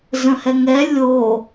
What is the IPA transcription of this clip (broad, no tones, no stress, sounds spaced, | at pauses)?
z ə̃ h ɛ ŋ ɛ lʲ o